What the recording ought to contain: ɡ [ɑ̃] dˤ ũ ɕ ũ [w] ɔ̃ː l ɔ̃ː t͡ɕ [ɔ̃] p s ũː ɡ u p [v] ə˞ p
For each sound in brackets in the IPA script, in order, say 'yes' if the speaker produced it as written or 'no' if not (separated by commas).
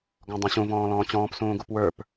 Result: no, no, no, no